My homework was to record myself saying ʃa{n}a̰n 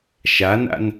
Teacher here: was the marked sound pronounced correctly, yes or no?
yes